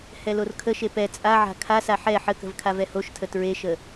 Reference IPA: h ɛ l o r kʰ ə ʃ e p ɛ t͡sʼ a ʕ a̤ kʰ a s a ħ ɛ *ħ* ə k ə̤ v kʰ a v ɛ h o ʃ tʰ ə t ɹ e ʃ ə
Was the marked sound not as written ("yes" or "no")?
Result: no